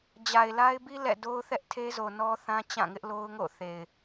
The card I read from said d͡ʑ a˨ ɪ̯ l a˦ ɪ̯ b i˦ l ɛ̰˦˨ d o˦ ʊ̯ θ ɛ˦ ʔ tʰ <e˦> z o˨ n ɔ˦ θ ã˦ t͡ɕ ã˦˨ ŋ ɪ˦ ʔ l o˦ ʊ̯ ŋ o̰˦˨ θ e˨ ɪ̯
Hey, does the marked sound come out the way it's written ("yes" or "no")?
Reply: yes